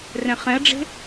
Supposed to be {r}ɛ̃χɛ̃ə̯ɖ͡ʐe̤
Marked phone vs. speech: correct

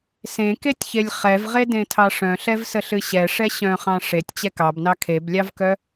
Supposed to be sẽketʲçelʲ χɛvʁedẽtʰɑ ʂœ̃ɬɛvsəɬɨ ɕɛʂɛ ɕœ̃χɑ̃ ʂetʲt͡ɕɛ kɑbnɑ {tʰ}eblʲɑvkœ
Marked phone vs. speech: incorrect: kʰ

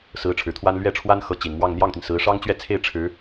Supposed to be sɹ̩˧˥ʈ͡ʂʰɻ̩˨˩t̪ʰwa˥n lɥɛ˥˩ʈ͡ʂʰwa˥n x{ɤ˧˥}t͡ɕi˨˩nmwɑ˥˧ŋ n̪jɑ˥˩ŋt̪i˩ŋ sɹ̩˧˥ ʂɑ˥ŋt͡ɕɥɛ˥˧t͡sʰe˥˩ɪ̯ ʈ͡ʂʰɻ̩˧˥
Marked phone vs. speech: correct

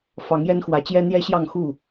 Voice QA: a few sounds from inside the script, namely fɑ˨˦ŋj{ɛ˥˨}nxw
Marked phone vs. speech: incorrect: ɛ˦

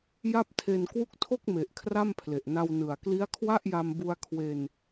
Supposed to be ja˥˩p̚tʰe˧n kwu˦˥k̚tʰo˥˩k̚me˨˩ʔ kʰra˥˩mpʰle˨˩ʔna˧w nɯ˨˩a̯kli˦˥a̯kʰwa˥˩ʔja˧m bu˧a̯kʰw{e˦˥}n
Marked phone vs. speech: incorrect: e˧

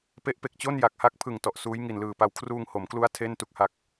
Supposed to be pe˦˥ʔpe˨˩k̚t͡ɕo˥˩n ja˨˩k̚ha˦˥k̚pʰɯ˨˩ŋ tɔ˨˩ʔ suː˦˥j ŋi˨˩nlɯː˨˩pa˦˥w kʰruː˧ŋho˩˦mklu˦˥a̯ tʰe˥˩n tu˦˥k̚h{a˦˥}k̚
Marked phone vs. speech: correct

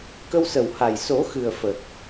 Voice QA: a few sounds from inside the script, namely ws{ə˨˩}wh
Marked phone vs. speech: correct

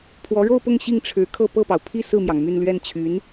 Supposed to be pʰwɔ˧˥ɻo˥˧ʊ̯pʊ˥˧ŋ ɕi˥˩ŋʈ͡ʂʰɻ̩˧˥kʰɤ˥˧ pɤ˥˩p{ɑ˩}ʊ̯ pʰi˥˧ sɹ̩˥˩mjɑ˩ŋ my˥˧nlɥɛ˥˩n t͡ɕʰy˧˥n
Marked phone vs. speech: correct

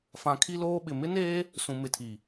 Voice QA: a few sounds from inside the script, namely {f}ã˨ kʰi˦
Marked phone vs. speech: correct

